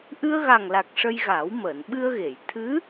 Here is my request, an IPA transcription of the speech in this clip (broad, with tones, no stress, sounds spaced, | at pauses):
ʔ ɨ˧ ə̯ ɣ a˨˩ ŋ l a˨˩ k̚ ʂ ə˧ j ɣ aː˨˩˦ w m əː˨˩˨ n ɓ ɨ˧ ə̯ ɣ e˨˩˨ j t̪ʰ ɨ˧˥